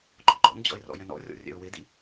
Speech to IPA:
ɡ͡ǃɔɡ͡ǃɔ̰nd͡ʑɔ̰ɪ̯ rɔ̰jɛ̃nɔ̰rʲɔ̰ rʲɛ̰ʊ̯wɪdḭ

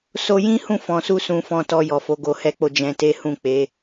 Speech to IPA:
so˧jĩ˦hũ˦˨ fɔ̃˧ su˦sũ˧fɔ̃˧ tɔ˧jɔ˨fo˨˦ ɡo˧hɛ˦k͡po˦˨ d͡ʒɛ̃˧te˦ hũ˦˨k͡pe˨˦

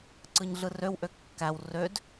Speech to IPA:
ǀɯɲɮɯrøw ʔøkːæw rød

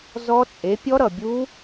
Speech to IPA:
zɔ˦˥t͡sʼe˨˥ pʲɔ˦˥ɾʌ˩bʲu˦˥

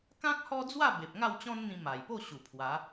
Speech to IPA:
kã˦k̚ hɔ˦d͡zwa˥˧ be˨p̚ŋa˥˧wt͡ɕɔ̃˦nn̪ĩ˧ ma˨˩j po˥˧ ɕu˨˩pʰwa˨˦

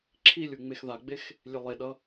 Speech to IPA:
ǁʰilʲu ŋ͡mexðaɡ͡bex | lʲelˠeɗʌ

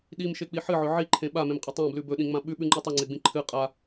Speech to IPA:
ɗimʃek͡pi ħɨʕɵ ʕiǃʰẽ ɓamẽmqʼɵ tˤãblʉ bɵɗĩŋ͡mã ɓʉɓʉŋ͡ǃʉ tˤɨŋ͡ǀeɡ͡bĩ ǃʰɨ qʼa

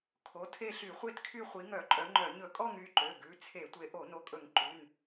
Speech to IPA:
kʰo˩˧˩tʰe˥˧ɬy˧˩˧ χʷe˥˧tkʰy˥˧ χʷi˨˦ŋœ˧˩˧ǃʼœ˨˦ŋ͡ǃœ˧˩˧ ɲɵ˧˩˧kʼɔ˥˧ŋ y˩˧˩ǃø˩˧˩ɡʉ˩˧˩ t͡sʰe˧˩˧tʷe˨˦ ʔo˧˩˧no˨˦kʼɵ˧˩˧ŋ ǃʉ˩˧˩n

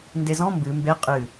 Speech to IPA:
ndezɔ̃ mbɨ mbe qʼɨ

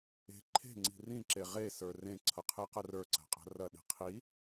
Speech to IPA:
e̤ ǃʰe̤ŋ͡ǀi̤ rĩǁe ʁesə˞ rẽǀʰʌqʰeqɐ rə˞ǀa̤qʼa̤ rɐɗi̤ qʰi

